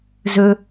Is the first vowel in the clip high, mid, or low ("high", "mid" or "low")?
mid